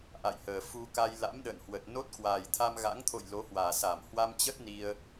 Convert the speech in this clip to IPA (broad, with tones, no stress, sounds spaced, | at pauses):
ʔ a̰˧˨ j h əː˨˩ f u˧ k a˧ j l a̰˧˥ m ɗ ə̰ː˧˨ n h w ə˨˩ t̚ n o˦˥ t̚ k w aː˨˩ j t̪ʰ a˧ m ɣ a̰˧˥ ŋ t̪ʰ o̰˧˨ j l o˨˦ h w aː˨˩ s a˧˩ m h w a˧ m t͡ɕ ə˦˥ t̚ n i˧ ə̯